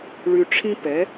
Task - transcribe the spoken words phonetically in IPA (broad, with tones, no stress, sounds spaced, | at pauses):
ɭ y˧ ʈ͡ʂʰ ĩ˥ p ɛ˩˥